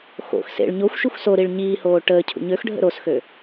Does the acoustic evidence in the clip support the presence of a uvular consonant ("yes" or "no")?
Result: no